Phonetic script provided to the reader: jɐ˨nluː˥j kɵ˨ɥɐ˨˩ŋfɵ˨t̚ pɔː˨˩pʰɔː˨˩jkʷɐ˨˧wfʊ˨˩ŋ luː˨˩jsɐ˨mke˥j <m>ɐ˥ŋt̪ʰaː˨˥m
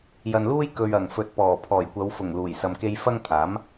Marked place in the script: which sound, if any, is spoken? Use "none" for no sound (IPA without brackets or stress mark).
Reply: f